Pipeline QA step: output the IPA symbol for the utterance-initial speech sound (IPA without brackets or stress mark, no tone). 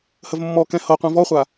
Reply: h